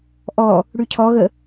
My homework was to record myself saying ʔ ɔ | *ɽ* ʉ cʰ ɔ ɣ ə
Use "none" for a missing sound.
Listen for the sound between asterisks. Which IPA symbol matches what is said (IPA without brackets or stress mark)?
ɽ